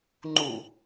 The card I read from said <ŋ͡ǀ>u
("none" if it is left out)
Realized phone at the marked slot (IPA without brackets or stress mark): ŋ͡ǃ